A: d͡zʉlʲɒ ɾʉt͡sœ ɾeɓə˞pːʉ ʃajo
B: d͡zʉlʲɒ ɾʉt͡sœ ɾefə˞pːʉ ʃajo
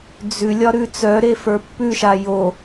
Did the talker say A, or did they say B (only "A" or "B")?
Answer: B